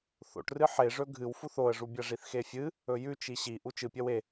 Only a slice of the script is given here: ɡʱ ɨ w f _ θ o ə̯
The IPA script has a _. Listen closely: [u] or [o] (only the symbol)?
u